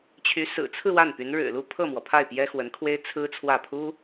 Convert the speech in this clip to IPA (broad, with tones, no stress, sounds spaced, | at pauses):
t͡ɕʰ y˧˥ s ɹ̩˨˩ t͡sʰ ɹ̩˥˧ w a˥˩ n p y˧˥ n ɻ ɻ̩˨˩ l u˥˧ pʰ ɤ˥˩ m w ɔ˩ pʰ a˥˩ ɪ̯ p j ɛ˥ x w ə˧˥ n kʰ w e˥ ɪ̯ t͡sʰ ɹ̩˥ t͡sʰ w ä˥˩ pʰ u˥